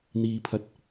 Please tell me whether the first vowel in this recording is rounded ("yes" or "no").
no